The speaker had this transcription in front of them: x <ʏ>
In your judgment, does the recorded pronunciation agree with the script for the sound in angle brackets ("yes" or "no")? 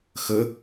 no